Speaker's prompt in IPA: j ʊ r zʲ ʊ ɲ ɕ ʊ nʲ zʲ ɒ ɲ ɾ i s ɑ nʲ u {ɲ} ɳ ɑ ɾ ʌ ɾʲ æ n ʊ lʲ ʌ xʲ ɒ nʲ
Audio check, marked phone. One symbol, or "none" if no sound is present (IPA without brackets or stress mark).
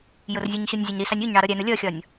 ɲ